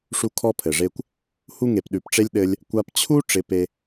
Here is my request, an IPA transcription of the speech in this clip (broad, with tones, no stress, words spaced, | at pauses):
ʂu˦kʰɔ˦pʰɘ˨ʐe˦kʷ | hu˦ŋe˨pɗʉ˨pʈ͡ʂe˦lʲ ɗɘ˧lʲ | kʷa˧pt͡ɕʰu˦ ʈ͡ʂɪ˨˦pe˧